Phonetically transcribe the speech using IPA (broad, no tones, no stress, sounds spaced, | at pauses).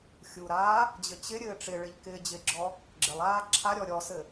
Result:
xʲ u ɾ aː | d͡ʑ ɘ t͡ɕ ɪ ɾʲ ɘː ʈ͡ʂ ɪ ɭ ɪ ʎ k ɪː d͡ʑ ɪ ɡ͡ǁ ɔ | ɡ͡ǁ ɪ lˠ aː ǁʰ a ɾʲ ɔ ɾʲ ɔ s ɘ